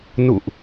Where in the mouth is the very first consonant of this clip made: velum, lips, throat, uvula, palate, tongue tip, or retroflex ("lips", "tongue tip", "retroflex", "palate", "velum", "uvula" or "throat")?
tongue tip